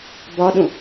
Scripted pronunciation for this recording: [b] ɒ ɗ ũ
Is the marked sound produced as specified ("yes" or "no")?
yes